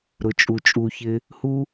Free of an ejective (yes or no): no